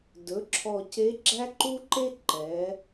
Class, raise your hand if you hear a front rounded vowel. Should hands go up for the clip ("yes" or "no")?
no